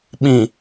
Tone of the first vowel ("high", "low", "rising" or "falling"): low